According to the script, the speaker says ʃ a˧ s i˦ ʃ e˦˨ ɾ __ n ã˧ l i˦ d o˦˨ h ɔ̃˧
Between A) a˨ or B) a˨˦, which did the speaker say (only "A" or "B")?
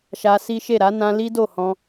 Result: B